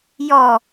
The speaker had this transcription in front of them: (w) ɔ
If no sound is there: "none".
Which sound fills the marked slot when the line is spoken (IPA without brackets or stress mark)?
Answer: j